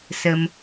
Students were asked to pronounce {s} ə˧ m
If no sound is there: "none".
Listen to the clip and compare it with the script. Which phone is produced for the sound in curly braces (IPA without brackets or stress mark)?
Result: s